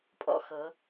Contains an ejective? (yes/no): yes